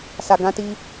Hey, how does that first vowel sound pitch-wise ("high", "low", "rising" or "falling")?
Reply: low